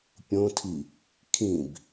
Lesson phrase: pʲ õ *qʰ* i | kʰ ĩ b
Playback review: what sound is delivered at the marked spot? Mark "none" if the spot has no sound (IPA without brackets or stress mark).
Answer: tʰ